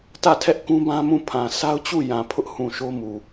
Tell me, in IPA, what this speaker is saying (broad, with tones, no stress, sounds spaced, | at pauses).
t ä˦˨ tʰ ɛ˦ ʔ k ũ˦ b ã˦ m ũ˦˨ pʰ ã˨ sʰ a˦ ʊ̯ t͡ɕ u˦˨ j ã˨ pʰ ʊ˦ ʔ h ũ˨ ʃ o˦ m u˨